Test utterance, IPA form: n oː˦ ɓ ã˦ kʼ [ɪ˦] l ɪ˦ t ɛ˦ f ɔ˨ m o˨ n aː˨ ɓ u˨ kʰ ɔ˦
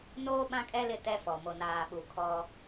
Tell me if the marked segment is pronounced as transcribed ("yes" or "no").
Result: no